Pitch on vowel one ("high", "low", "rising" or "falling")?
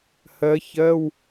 rising